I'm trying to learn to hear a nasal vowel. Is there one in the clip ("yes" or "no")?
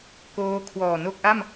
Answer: no